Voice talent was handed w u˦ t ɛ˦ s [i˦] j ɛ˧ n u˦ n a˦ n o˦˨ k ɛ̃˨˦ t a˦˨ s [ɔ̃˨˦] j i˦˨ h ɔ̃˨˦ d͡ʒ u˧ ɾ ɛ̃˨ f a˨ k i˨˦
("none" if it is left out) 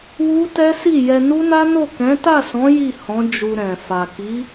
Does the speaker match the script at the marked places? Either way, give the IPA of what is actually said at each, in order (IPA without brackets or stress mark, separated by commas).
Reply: i˦˨, ɔ̃˨˦